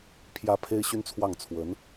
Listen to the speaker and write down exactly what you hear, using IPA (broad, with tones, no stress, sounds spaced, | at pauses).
pʰ j ä˧˥ pʰ e˥ ɪ̯ ɕ y˥ n t͡sʰ w ɑ˥˩ ŋ t͡sʰ w ə˧˥ n